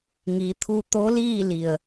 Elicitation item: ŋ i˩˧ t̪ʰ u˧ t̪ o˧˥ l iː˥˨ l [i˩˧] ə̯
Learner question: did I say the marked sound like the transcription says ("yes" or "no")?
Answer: no